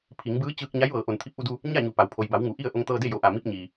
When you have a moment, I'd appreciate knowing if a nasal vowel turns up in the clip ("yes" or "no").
no